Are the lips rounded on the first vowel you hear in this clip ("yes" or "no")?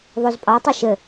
yes